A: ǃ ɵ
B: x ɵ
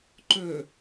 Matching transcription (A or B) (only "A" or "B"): A